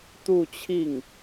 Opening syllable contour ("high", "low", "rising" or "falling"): falling